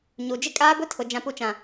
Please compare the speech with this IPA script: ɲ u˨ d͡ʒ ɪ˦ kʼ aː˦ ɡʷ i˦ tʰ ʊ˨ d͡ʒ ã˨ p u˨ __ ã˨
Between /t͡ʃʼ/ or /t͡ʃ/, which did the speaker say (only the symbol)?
t͡ʃ